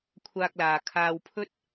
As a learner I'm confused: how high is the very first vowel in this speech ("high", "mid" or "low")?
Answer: low